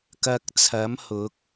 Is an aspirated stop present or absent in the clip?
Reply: present